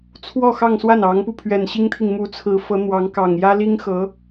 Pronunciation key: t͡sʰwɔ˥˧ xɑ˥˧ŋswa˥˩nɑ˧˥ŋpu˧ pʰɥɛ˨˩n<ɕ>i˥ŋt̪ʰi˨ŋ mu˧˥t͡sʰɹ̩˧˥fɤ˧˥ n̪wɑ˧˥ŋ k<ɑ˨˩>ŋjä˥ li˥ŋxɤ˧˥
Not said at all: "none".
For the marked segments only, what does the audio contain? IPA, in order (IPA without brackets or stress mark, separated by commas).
ɕ, ɑ˨˩